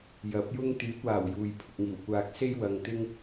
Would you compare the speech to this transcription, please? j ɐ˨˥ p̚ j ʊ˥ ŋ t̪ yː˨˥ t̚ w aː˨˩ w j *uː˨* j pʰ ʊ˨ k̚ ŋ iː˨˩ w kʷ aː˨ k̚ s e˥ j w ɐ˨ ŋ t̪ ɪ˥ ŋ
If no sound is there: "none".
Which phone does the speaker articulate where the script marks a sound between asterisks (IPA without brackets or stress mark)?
uː˨